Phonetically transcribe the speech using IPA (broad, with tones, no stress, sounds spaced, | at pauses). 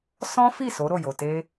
s ɔ̃˦ f i˦˨ s o˨˦ ɾ o˦˨ j o˨ t e˧